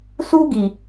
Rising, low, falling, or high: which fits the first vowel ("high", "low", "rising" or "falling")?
high